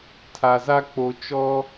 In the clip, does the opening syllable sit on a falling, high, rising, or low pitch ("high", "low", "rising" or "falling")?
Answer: low